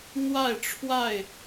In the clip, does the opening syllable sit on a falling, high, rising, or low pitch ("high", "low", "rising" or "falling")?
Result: falling